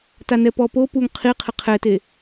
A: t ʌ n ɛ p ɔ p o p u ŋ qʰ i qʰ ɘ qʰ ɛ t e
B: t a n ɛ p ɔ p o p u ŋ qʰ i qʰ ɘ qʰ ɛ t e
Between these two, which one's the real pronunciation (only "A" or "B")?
B